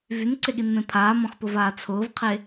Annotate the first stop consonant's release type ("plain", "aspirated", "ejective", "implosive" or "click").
click